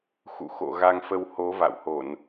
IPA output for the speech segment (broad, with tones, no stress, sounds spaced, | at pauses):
x ṵ˧˨ x o̰˧˨ ɣ a˧ ŋ f ə˧ w h o˨˦ v a̰˧˨ w h o˧˩˨ n